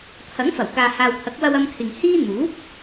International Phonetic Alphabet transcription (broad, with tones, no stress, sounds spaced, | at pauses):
pʰ ɐ˨˥ ŋ f ɐ˨˩ w k aː˨ h aː˨ w t̪ʰ ɐ˨˥ k̚ w ɐ˧ w ɐ˧ m kʰ ɪ˨ ŋ h iː˥ n̪ uː˨˥ p̚